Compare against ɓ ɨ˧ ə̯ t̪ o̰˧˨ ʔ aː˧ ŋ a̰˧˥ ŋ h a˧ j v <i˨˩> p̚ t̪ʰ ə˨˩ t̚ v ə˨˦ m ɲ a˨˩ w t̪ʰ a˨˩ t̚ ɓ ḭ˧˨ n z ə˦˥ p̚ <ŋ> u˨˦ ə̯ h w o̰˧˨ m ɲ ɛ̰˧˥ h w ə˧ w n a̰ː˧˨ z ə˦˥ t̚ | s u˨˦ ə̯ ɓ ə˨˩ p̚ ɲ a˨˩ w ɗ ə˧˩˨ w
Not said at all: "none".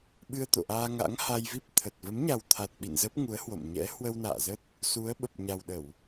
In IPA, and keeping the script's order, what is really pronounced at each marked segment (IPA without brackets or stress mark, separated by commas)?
i˦˥, ŋ